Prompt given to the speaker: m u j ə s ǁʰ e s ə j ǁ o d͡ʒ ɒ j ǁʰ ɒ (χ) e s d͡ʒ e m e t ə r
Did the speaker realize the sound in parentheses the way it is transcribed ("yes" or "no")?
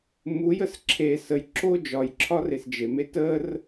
no